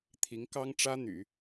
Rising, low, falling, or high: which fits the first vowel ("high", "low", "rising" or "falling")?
rising